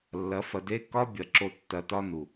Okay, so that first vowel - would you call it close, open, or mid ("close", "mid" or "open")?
open